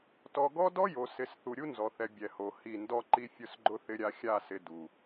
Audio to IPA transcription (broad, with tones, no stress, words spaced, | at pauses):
tɔ˨ɡɔ˦ dɔ˦jo˨ sɪ˨˦s θu˨ɾʲu˦nzɔ˨θɛ˨ bʲɛ˨ho˨ hi˦˨ ndɔ˦ǃi˦ fʲʊ˦sɡ͡ǃʊ˦θɪ˦ɾʲa˦ xʲa˦˨sɪ˨ du˨